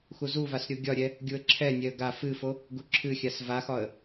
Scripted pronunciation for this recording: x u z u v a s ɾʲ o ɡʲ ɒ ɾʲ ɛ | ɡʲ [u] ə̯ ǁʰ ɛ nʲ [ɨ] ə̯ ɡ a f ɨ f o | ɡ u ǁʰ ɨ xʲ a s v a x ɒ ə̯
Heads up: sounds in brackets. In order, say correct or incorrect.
correct, incorrect

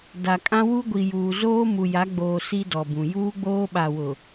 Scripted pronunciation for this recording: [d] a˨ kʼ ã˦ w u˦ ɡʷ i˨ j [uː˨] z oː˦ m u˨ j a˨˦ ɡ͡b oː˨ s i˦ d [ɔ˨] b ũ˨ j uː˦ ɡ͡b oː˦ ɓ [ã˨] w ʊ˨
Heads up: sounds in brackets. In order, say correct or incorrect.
correct, correct, correct, incorrect

